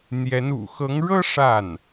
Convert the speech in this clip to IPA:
n̪jɛ˧˥nṵ˨˩ xɤ˧˥ŋɻɤ˥ ʂa˥˩n

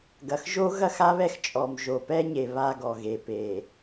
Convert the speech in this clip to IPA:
ɡɐ˨xʒo˦ ɣɐ˦xa˦βɛ˦x t͡ʃʼɔ˨m ʒo˨ pɛ˦ɲe˨ βa˦ɡɔ˨ɣe˨ pe˨

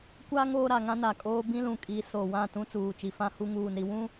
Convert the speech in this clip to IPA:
kʷa˦ ŋoː˦ɾa˨ŋã˦na˨ kʼoː˦ bĩ˦lũ˨ kʼi˨˦ so˨ wã˦˨tũ˦ t͡suː˨t͡ʃi˨fã˦hu˦ ŋuː˨n ɾi˨wũ˦

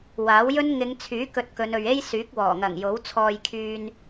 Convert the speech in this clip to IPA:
waː˨˥wjɵ˥n ŋɪ˨˧ŋt͡sʰyː˨˥ kɵ˧t̚kɵ˨˧n ɵ˨ɥe˥jsyː˨˥k̚ wɔː˨˩ŋɐ˨˩ŋ jo˨˥wt͡sʰɔː˧jkʰyː˧n

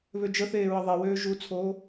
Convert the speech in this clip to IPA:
βød͡ʒəθeː ɹəðˤewøː ʒut͡sʰoː

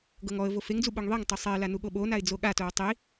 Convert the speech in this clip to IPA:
ɡɤŋɔə̯vo feŋd͡zu ɓoŋðˤiŋtˤɤ sˤɛɪ̯la nuɠoɓonaɪ̯ d͡zoɠatow tˤi

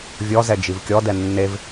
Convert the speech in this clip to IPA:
vʲɔzɛ d͡ʒivkʲɔdɛ nːev

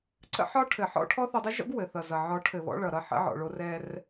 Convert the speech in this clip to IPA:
ǀə̰˦ħɒ˦ ʈʰɘ˨ħɔ̰˦ʈʰɔ˦ θɔ˧dˤə˦ʒɔ̰˦ɡ wɘ˨θʌ˨zʌ˨ ʕɔ˨˦ʈʰɘ˨βɔ̰˧ ɭʌ˨ɾʌ˧ ħə̰˧ʕɔ̰˨ɭo˧ rɛ˧r

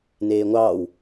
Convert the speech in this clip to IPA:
neːŋʷɑːw

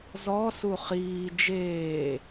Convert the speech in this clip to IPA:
zɔsu χiː d͡ʒeː

